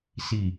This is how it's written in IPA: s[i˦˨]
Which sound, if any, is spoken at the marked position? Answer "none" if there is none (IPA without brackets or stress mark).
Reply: i˦˨